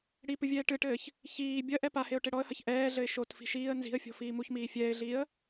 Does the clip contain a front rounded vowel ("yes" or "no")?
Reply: no